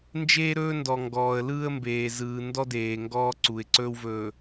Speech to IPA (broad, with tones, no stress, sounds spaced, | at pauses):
n d͡ʒ eː˦ ɾ ɵː˦ n d ɔ˨ ŋ ɡ ɔː˨ ə̯ l ɯː˦ ə̯ m b eː˨ z ɯː˨ n d ɔ˦ d eː˨ ŋ ɡ ɔː˦ ǀ u˨ ɪ̯ ǀ ɵː˦ w v ɵː˨